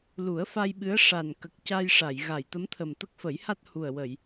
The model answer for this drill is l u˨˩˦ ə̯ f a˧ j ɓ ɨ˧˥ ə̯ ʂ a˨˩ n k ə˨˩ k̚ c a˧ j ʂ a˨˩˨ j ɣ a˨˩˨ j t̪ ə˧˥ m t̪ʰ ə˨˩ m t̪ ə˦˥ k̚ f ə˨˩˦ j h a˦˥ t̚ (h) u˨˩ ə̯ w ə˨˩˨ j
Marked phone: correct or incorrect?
correct